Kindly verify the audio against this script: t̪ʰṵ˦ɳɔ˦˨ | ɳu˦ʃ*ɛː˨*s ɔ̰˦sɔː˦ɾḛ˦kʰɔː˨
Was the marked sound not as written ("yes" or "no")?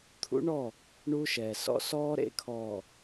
no